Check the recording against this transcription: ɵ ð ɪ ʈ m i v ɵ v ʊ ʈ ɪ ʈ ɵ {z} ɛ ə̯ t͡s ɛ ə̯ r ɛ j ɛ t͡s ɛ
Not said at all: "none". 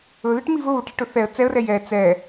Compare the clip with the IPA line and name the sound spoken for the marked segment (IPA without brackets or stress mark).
θ